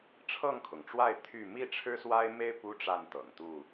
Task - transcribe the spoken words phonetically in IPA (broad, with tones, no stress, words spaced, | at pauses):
ʈ͡ʂʰɤ˥˨ŋkʰʊ˩ŋʈ͡ʂwa˥˨ɪ̯ t̪ʰy˥˨ mi˥˨ʈ͡ʂʰɻ̩˦swa˦ɪ̯me˦ɪ̯ pu˦ ʈ͡ʂa˥˨nt̪ɤ̰˨˩ŋt̪u˥˨